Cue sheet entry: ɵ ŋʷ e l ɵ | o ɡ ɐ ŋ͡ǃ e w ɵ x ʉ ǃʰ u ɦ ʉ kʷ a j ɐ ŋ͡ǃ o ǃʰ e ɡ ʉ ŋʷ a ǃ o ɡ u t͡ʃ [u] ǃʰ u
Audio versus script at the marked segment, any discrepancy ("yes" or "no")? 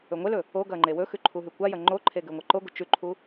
yes